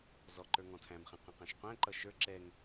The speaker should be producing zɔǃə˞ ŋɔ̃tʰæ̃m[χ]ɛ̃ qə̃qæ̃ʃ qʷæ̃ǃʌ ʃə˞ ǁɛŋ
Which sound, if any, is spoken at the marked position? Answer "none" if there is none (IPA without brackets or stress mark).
χ